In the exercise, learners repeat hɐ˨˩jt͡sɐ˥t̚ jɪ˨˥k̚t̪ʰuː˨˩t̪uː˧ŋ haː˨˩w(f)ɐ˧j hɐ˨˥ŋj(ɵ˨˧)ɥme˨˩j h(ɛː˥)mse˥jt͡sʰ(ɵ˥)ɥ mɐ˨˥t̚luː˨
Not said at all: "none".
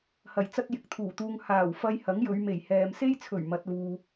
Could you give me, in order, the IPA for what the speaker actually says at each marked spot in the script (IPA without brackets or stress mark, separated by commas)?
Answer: f, ɵ˨˧, ɛː˨, ɵ˨˩